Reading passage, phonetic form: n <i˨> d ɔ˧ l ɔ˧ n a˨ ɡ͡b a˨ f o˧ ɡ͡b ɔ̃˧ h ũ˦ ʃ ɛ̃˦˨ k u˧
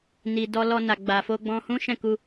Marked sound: correct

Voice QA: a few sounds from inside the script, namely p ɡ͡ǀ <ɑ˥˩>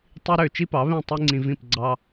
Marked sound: incorrect: ɑ˥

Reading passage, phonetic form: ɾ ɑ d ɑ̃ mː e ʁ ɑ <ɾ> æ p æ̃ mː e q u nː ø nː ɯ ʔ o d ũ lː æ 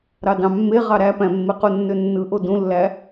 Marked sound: correct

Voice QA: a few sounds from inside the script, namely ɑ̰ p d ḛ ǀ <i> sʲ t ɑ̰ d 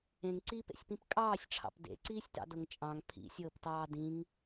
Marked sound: incorrect: iː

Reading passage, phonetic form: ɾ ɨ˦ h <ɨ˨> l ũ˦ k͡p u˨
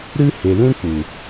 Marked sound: incorrect: e˨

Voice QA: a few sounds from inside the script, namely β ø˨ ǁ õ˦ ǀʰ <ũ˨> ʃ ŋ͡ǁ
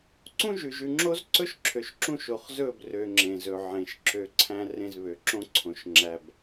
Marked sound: incorrect: õ˨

